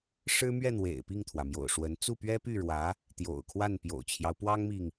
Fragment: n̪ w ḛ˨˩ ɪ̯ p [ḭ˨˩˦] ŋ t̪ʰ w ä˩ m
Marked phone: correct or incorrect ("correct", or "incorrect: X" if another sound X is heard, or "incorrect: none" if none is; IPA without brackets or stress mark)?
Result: incorrect: i˥˩